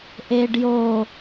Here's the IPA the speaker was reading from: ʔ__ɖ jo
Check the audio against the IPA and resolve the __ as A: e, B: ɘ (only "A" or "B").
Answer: A